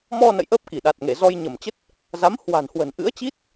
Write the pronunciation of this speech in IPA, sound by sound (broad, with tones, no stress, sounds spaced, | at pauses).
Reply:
m ɔ˧ n ə̰˧˨ j ʔ əː˦˥ p̚ k i˧˩ ɗ a˨˩ t̚ ŋ e˧˩ z ɔ˧ j ɲ ə˧˩ m t͡ɕ ə˦˥ t̚ | z a˨˦ m h w a̤˨˩ n h w ə̤˨˩ n ʔ ɨ̰˧˥ ə̯ t͡ɕ i˦˥ t̚